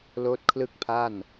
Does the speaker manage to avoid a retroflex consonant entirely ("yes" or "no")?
yes